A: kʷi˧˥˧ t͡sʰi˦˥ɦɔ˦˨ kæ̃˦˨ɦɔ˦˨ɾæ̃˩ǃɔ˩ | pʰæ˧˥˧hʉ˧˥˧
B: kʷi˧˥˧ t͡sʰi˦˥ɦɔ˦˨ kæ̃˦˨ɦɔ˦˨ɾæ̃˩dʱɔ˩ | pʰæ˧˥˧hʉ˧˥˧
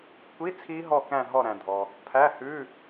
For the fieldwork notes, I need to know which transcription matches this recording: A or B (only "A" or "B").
B